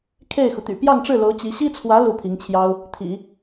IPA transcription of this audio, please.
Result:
kʰ e˥˩ ɪ̯ x u˩ t̪ y̰˨˩ p j ɑ˥˧ ŋ ʈ͡ʂ ɻ̩˥˩ l o˧˥ ʊ̯ t͡ɕ i˧˥ ɕ i˥ t͡sʰ w ä˧˥ l u˥˩ pʰ i˧˥ ŋ t͡ɕʰ j ɑ˥ ʊ̯ | t̪ʰ ḭ˨˩˦

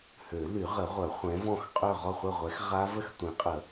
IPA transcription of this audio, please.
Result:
h ø˨˩˦ l y˨˩˦ ʁ ə˨˩˦ ʁʷ œ˨˩˦ χʷ ɛ̃˨˥ v ɔ̃˥˨ x qʼ ø˥˨ ʁ ɔ˥˨ χʷ ɛ˥˨ ʁʷ ɛ˨˥ x ʁ a˦˥ v ə˥˨ x tʷ ĩ˨˩˦ qʼ ə˨˩˦

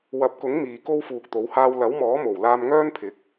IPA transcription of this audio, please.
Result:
w ɐ˨˥ p̚ k ʊ˨˥ ŋ m iː˨ k o˥ w f uː˨ k̚ t̪ o˨˥ w h aː˧ w l ɐ˨˥ w m ɔː˨˥ m o˨˩ w l aː˧ m ŋ œː˥ n pʰ ɪ˨˥ k̚

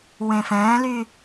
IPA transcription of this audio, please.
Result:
w ẽ f ɛ̃ː l y

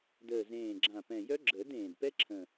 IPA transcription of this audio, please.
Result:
d əː˨˩ z ẽː˨˩ ɡ͡ǁ ã˨˩ p ɛ̃˨˩ j œ˦˥ ɡ͡ǁ əː˨˩˦ d ẽː˨˩ d p ɛ˦˥ ǁʰ ə̃˨˩

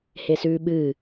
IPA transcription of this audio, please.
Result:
h e s ʉː ɓ ɨː

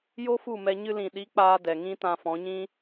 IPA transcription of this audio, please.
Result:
j o˦ f u˦˨ m ɛ˧ ɲ ɨ˧ l ĩ˨ ɗ i˨˦ k͡p aː˧ d ɛ˨ ŋ ĩ˦ t ã˧ f ɔ̃˨˦ ɲ ĩ˦

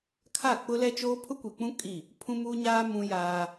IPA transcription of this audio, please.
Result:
kʰ a˦˨ k͡p ʊ˦ l ɛ˦ t͡ʃ oː˦ pʰ ʊ˦ kʷ i˨ k͡p ũ˦ kʼ i˦˨ | pʰ ũ˦ m uː˦ ɲ aː˦ m ũ˦ j aː˦

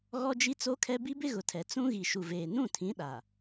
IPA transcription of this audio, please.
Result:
ɣ ɔ˦ d͡ʒ i˦ t͡s o˦ kʰ ɛ˦ b i˦ b ɪ˦ ɣ ʊ˨ tʰ ɛ˨ t͡s ũ˦ ɣ i˨ ʃ u˨ v eː˨ n ũ˦˨ tʰ ĩ˨˦ ɗ a˨

